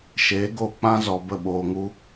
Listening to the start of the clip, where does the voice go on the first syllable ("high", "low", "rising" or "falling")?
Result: rising